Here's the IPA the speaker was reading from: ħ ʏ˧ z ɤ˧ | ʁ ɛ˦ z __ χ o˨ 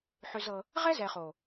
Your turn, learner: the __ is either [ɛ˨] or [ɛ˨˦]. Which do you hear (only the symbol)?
ɛ˨